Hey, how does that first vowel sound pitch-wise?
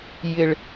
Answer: high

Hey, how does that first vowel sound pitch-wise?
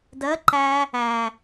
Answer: rising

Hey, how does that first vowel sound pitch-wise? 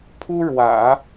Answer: high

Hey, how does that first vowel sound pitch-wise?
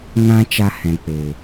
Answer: high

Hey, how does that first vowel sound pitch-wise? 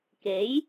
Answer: rising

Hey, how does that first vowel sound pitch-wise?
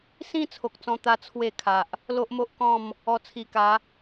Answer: high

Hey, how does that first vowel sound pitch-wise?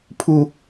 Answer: low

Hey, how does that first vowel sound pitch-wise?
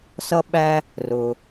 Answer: high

